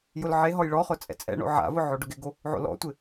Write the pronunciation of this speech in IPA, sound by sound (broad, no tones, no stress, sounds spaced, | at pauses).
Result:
j ʊ l ʕ e ɦ ɔ j ɭ ɔ χ ʊ t͡sʼ ɛ̰ t͡sʼ ɛ̰ ɳ o̰ ʕ a̰ v ʊ ʕ o ɖ ʊ ɡ ɪ ɡ o | ʕ o̰ l ɔ̰ tʷ ɪ